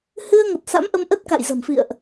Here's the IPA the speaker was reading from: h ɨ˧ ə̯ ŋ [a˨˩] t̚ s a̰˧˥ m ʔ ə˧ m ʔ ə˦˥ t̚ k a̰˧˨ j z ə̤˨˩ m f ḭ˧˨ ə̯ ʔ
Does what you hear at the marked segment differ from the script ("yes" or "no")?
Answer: yes